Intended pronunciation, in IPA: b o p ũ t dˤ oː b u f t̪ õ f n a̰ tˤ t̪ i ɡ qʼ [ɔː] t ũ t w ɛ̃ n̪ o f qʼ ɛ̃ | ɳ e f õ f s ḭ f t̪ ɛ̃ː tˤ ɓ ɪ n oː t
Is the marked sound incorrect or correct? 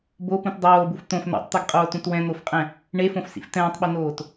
incorrect